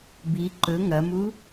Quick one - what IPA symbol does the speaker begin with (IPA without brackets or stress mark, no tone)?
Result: b